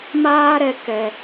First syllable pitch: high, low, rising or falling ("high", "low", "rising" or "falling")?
high